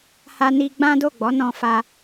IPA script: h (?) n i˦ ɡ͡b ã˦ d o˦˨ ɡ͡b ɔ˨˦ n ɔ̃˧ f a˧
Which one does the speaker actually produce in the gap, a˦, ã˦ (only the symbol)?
a˦